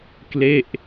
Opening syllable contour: falling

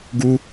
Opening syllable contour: high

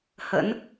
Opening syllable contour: rising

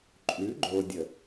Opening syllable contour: rising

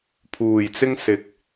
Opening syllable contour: low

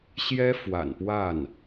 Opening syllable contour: high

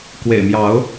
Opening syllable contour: low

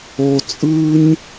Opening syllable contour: low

